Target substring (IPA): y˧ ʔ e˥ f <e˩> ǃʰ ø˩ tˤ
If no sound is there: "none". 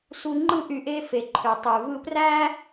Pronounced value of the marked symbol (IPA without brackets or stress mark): e˩